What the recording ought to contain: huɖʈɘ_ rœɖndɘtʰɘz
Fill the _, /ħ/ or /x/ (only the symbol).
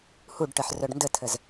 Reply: ħ